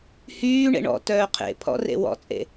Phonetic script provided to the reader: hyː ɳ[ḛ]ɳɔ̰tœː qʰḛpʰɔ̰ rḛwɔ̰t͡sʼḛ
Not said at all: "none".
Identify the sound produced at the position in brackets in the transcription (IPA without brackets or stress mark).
ḛ